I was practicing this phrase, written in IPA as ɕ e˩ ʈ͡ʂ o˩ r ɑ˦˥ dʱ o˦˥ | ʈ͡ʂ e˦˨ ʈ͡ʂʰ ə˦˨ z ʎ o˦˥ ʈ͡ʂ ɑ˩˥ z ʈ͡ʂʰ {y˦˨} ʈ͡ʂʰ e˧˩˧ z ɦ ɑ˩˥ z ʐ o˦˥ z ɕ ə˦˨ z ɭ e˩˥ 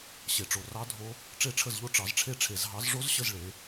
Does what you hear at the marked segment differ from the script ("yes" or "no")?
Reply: yes